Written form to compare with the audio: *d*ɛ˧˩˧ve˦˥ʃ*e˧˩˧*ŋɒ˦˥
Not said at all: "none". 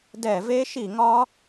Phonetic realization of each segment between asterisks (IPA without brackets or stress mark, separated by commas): d, i˧˩˧